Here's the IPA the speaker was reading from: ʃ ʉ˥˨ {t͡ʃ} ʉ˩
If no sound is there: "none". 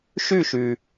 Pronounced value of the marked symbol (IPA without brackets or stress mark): ʃ